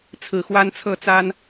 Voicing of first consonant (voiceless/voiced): voiceless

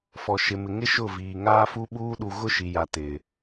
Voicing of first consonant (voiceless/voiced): voiceless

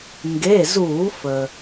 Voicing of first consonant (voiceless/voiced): voiced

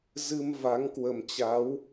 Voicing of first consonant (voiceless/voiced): voiced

